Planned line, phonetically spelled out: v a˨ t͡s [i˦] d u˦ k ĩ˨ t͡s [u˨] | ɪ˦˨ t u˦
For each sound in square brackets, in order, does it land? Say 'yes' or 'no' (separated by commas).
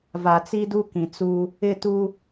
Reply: yes, no